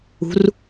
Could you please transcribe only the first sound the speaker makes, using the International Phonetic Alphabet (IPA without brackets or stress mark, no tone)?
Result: ṳ